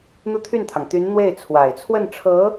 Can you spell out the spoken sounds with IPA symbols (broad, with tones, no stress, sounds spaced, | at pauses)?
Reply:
n̪ u˥˧ t̪ʰ y˥˩ n t̪ʰ ɑ˩ ŋ t̪ y˧˥ n n̪ w e˥˩ ɪ̯ t͡sʰ w a˨˩ ɪ̯ t͡sʰ w ə˥˩ n ʈ͡ʂʰ ɤ˧˥